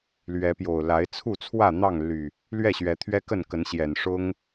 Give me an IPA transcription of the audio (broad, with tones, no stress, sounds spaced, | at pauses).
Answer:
l ɥ ɛ˨˦ p j o˨˩ ʊ̯ l a˨˦ ɪ̯ t͡sʰ u˥˨ t͡sʰ w ä˥˨ n̪ ɑ˥˨ ŋ l y˨˩ | l ɥ ɛ˥˨ ɕ ɥ ɛ˨˦ t̪ʰ ɥ ɛ˦ k ə˥˨ n k ə˨˦ n ɕ j ɛ˨˩ n ʂ ʊ˦ ŋ